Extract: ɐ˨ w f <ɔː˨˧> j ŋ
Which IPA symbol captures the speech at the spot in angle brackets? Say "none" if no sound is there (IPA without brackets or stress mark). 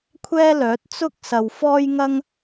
ɔː˥